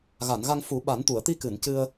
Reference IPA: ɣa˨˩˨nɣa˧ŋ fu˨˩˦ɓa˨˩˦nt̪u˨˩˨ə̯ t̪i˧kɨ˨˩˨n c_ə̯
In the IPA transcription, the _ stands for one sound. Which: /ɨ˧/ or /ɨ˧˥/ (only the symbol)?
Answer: ɨ˧